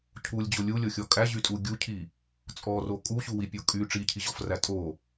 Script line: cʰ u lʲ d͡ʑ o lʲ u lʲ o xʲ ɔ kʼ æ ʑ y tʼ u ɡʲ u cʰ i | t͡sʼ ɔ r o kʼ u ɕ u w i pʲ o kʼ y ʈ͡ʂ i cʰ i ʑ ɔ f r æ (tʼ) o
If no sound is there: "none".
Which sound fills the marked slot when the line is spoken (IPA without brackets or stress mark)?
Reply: tʼ